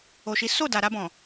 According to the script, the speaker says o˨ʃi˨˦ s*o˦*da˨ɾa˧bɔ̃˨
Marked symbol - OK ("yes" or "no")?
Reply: no